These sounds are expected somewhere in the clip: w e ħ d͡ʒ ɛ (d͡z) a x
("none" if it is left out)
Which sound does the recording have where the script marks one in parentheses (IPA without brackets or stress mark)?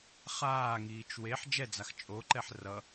d͡z